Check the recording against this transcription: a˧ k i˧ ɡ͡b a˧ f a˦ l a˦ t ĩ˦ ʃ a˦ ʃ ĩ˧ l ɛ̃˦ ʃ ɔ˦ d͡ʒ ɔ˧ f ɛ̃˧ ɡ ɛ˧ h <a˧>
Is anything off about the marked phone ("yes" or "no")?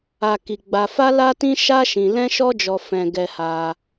no